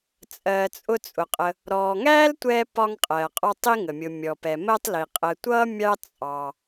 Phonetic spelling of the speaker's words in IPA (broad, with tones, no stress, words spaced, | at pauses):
t͡sʼɜː˨t͡sʼʊ˦t͡sʼʊ˩qʼə˨ | ɾɔː˩ŋæː˥l tʷɛː˦ pɒ˦ŋqʼɜː˩qʼɔ˦tˤ i˥ŋə˩mʲʊ˨ mʲɔ˩pɛ˩ məː˦tˤli˩ qʼə˨tʷʌ˥mʲɑ˦ t͡sʼɑ˩